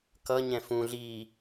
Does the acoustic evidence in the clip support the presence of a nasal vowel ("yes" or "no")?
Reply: yes